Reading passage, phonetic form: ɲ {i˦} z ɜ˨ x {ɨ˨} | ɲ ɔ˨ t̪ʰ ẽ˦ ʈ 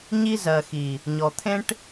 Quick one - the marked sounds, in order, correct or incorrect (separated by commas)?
correct, incorrect